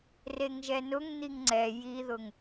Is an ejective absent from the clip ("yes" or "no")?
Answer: yes